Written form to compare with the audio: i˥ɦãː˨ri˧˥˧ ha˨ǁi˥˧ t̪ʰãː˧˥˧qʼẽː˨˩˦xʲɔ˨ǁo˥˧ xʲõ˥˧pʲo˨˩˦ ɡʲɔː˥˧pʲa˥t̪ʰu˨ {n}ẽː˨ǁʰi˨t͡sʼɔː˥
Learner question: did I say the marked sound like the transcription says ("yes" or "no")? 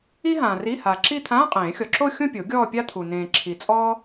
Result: yes